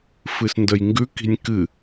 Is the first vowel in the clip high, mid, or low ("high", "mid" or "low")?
high